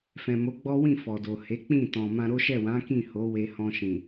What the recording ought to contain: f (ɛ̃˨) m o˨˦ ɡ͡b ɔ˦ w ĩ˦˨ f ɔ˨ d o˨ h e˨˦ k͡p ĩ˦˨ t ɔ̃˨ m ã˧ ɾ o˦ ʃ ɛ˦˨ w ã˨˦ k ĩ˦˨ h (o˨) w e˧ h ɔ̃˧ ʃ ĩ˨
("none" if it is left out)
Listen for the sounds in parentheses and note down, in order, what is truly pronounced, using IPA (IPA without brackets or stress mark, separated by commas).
ɛ̃˨, o˨˦